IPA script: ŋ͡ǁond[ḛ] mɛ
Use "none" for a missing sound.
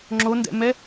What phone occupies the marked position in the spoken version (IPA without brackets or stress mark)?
ɛ̰